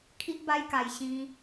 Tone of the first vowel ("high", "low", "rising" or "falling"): high